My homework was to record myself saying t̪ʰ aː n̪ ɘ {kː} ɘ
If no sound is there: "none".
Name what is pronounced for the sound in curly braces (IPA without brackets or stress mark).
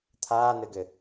ɡ